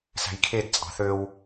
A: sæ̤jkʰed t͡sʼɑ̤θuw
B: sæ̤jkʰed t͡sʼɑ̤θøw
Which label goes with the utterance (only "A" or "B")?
B